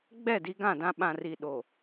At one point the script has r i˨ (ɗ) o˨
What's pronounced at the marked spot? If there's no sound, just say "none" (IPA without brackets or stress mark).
ɗ